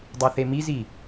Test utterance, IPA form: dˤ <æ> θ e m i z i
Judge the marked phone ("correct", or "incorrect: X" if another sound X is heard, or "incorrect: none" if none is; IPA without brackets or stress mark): incorrect: ɛ